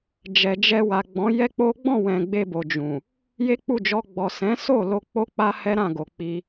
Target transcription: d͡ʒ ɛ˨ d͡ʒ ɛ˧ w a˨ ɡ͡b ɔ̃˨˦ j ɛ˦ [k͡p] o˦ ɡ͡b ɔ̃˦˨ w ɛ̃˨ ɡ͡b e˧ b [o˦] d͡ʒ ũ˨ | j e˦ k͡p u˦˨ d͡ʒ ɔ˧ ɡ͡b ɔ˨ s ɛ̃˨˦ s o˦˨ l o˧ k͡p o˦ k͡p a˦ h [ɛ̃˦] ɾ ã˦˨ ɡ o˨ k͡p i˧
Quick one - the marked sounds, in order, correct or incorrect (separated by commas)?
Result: correct, incorrect, incorrect